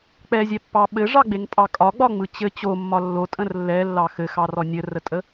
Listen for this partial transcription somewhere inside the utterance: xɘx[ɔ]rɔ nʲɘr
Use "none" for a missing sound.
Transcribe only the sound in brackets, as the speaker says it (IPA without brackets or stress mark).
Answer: ɑ